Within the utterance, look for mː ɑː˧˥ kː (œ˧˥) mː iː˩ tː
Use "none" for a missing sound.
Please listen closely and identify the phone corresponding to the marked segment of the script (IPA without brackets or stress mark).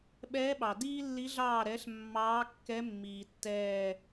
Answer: ɛ˧˥